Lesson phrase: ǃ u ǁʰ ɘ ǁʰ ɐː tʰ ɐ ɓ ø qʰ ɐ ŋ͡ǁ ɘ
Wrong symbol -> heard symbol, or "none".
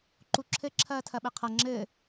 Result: ø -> ɘ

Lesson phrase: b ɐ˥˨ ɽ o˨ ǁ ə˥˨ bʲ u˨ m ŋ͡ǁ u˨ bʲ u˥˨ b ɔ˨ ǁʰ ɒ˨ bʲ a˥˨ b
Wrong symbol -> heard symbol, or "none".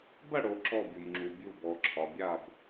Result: ə˥˨ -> ɔ˥˨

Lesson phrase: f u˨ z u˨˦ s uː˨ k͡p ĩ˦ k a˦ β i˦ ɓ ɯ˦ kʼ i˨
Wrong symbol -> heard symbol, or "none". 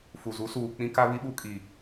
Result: ɯ˦ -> u˦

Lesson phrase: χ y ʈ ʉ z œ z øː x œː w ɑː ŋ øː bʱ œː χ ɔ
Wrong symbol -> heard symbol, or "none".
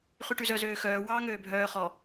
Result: none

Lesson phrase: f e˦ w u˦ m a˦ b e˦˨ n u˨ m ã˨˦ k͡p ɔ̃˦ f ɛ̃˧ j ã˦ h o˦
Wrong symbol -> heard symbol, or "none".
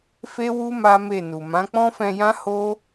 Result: b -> m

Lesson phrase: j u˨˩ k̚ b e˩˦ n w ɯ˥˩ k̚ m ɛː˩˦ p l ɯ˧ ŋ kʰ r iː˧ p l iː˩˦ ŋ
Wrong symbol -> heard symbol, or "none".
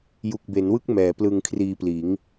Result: none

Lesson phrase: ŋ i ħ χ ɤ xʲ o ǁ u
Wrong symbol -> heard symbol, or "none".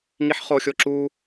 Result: ɤ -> o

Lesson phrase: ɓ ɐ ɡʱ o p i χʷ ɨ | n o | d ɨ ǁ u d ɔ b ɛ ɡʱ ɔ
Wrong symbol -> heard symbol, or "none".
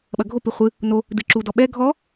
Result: b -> ɓ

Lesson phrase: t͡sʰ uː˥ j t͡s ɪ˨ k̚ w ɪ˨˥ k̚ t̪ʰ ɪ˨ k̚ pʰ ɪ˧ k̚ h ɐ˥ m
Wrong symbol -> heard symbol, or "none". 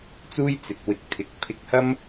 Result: t͡sʰ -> t͡s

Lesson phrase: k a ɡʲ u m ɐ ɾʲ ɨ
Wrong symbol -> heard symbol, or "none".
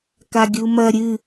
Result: none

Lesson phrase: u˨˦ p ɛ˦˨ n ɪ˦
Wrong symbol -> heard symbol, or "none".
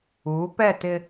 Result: n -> t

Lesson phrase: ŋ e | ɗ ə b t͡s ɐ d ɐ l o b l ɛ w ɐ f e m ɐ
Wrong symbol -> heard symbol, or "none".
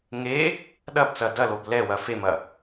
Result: ə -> ɐ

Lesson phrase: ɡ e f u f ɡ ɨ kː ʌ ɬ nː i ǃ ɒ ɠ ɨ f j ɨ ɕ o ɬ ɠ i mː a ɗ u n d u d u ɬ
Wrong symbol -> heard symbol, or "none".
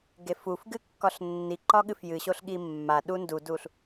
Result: ʌ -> ɒ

